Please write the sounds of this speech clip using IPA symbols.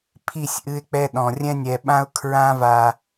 pʰi˦˨sʲʔɨ˦ɪ̯k͡pɛ˦ɗɔ̃˨ rʲɛ̃˦nʲɛ˨ɓã˦ʊ̯ kʰɹã˦va˨

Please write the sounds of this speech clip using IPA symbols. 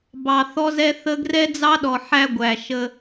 bɑ˨θɔ˦zɛ˦ θə˦ ɡrɛ˦d͡zɑ˦ɗɔ˨ ħæ˦ɡʷæ˨ ʃə˦

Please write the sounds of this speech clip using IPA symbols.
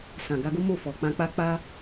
sã˨ɡa˧ɡo˦ mo˦˨fɔ˨ k͡pã˧k͡pa˦ k͡pa˦

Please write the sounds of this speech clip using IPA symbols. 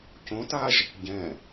cõtaʒ | ɟɛ̃

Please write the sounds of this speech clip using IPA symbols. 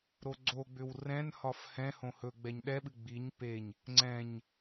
ɾoɡ͡ǀoɡ͡bʏw rɛ̃nhɒf hɛ̃ hõhɵɡ͡bɛɲ ɗɛɓɨ ɡ͡biɲ peɲ | ŋ͡ǀɛ̃ɲ

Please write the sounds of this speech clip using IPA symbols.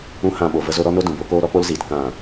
ũ˧ hã˧ɓo˨ və˧zo˧ɾɔ˦no˦ dũ˨bo˨˦koː˦ ɾɔ˦k͡po˦lziː˨t kã˦˨

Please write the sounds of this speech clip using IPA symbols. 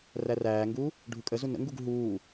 ræræːŋɡuː | ɖʱukʼəzu nə̰ŋɡuɡ ɦuː

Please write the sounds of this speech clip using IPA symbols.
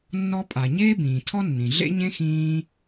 nːɔ˦pʼa˨ ɲeː˥bĩː˨tʰɔ˥nːĩ˨ ɮḛ˥ɲẽ˥xĩː˦

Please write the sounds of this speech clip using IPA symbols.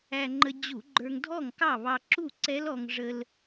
æ˧ŋ͡ǃə˧ d͡ʑu˧˩˧ɡ͡ǃə˞˧ŋ dʱɔ˥˨ŋkɑ˥˨βɑ˧ ǁu˥˨ǀɛ˦˥lɔ˧ŋ ʐə˧l

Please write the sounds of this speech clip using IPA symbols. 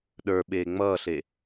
ɗə˞ ɓeːŋ͡mʌːɬe

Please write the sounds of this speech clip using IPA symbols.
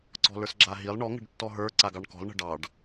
ǀɔ̤lə˞sɡ͡ǁaɦilˠ ɳɔ ŋə̤ɖtːɔɦə˞ ǀaɡɑɳkɔ̤lˠ ɳə̤ɖɑɖ

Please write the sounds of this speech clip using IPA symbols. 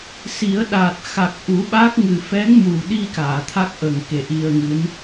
si˨˩˦ə̯ɗa˨˩t̚ xa˨˩k̚ ʔu˨˩˦ɓa˦˥k̚ ŋɨ˨˩fɛ˧˥ŋmu˨˩ɗi˧ kaː˨˩˨t̪ʰa˦˥k̚ʔə˨˩ŋ ke˨˩ʔi˧ə̯ŋɨ˧˥n

